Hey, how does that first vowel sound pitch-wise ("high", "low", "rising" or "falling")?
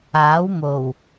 rising